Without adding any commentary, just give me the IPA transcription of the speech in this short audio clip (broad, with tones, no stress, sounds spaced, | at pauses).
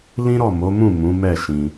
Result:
l ĩ˦ ɾ ɔ˦˨ m o˨˦ m ũ˦˨ m ũ˨˦ m ɛ˦˨ ʃ ĩ˧